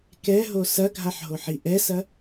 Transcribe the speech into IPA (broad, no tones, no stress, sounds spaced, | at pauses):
k ɛ ɦ o s ɐ ɡʱ a ħ ɦ o ħ i ʔ ɛ s ɐ